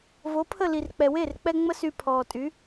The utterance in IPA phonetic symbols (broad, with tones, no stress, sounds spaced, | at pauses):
v o˩˥ pʰ ə˥˩ l i˩ r k͡p ɛ˩ w eː˥˩ r k͡p ɛ˧ ŋ͡m ə˥ s y˧ pʰ ɔː˩ tʼ y˩˥